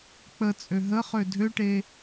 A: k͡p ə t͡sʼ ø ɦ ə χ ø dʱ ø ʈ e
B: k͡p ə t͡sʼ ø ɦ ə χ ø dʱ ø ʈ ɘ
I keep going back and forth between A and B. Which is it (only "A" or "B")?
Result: A